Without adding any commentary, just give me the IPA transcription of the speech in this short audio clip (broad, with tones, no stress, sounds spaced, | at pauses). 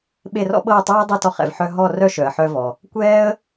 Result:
ɓ e˥˧ r ɔ̰˥ ɓ ɤ˥˧ ə̯ tˤ ɤː˥ dˤ ɤ˥˧ t ɔ˥ χ ɛ̰˨ v ħ œ˥ ɦ ɔ˥˧ r œ˥ ʃ œ˨ ə̯ ħ œ˥ v ɔ˨ | kʷ ɛː˥ ə̯